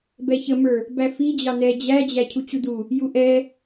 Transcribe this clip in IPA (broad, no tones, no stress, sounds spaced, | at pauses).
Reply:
b ɛ ç ə m ə˞ | b æ f i d͡ʑ ɑ n ɛ d͡ʑ æ d͡ʑ æ cʰ u t͡ɕ u d u | j u ʔ ɛ